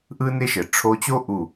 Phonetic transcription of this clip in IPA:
ʔ ɯ˦ n ɪ˦ ʃ ɘ˨ ʈ͡ʂʰ o˧ t͡ɕ o˦ ʔ u˦˨

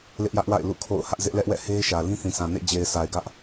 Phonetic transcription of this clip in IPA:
l ɪ˦ ʔ j ä˦ ʔ w a̰˦˨ ɪ̯ l ṵ˦˨ kʰ o̰˦˨ ʊ̯ h ä˦ ʔ z ɪ˦ ʔ l ɛ˦ ʔ w ɛ̰˦˨ h e˦ ɪ̯ ʃ ä˨ l ĩ˦ θ ĩ˨ s ã˨ n ḛ˦˨ d͡ʑ e˨ ɪ̯ sʰ a˨ ɪ̯ ɡ ä˦ ʔ

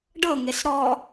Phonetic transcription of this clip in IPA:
ɖ ɤ ŋ e s ɾ ɔ

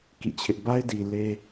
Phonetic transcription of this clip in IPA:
k ḭ˦˨ t͡ɕʰ ɪ˦ ʔ b a˦ ɪ̯ d i˨ l e˦

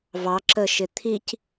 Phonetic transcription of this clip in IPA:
v ɑ ǁ ə ʃ ɪ t̪ʰ i c

